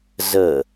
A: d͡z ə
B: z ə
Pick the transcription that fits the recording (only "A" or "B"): B